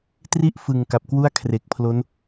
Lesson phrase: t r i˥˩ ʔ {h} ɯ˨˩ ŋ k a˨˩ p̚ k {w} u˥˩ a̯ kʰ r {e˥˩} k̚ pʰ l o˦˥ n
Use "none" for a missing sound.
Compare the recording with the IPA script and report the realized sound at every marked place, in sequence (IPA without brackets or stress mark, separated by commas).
f, w, e˨˩